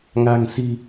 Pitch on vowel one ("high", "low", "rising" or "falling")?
low